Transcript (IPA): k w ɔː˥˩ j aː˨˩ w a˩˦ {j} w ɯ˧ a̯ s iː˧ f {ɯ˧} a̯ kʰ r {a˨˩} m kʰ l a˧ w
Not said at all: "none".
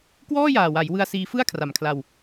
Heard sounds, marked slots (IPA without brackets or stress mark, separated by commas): j, ɯ˥˩, a˨˩